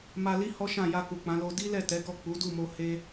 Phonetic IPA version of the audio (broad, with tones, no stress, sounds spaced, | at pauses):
m a˧ l i˦ h ɔ˦ ʃ ã˦˨ j a˧ k u˨ k͡p ã˨˦ l o˧ d i˦ l ɛ˦˨ t ɛ˨˦ ɡ ɔ˦˨ k͡p u˨˦ d u˦˨ m o˧ h e˦